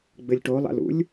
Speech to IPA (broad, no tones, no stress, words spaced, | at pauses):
ɡ͡bɘlʲʈolˠa̰lṵlʲ